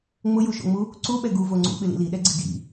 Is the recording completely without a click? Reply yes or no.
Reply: no